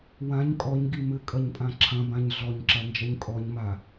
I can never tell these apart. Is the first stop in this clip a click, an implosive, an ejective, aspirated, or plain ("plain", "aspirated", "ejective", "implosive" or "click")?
ejective